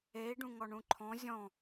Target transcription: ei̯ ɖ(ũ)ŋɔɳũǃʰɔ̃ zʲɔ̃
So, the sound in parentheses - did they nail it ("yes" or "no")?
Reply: yes